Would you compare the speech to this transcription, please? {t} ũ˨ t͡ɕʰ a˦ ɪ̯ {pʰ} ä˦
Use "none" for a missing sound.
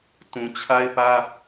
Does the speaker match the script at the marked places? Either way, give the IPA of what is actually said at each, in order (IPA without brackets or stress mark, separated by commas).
t, p